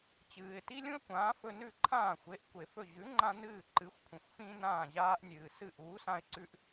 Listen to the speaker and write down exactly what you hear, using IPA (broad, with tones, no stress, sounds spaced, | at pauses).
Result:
t͡ɕ ɨː˩ ɪ̯ t i˥ lʲ ũ˥ ə̯ kʷ ãː˩˥ f ɵ˧ n ʉ˥˩ ǃʰ ãː˥˩ xʷ e˩˥ ʔ kʷ e˩ f ɵ˥˩ ʑ ʉ˩˥ ŋ͡ǃ ã˧ n ɨː˥˩ ǃ ɨ˩˥ xʷ kʷʰ ĩ˩ xʷ f ĩ˥ n ãː˥˩ ʑ aː˥ ʔ nʲ ɨː˩ s ɨ˥˩ ʔ uː˩˥ s ã˧ ɪ̯ ǀ ʉ˧ ʔ